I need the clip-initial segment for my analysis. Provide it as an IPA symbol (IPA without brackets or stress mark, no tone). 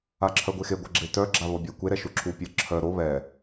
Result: a